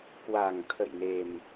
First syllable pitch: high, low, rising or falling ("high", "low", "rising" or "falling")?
low